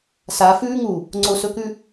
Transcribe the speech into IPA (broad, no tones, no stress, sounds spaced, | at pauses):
s a f ʉː ŋ u | ŋ͡ǀ o s ɵ k ʉ